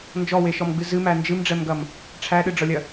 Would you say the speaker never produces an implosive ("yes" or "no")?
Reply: no